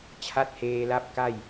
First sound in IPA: t͡ɕʰ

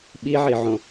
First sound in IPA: ɓ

